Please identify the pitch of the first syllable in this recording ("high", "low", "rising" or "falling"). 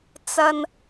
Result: low